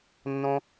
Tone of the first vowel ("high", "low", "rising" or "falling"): high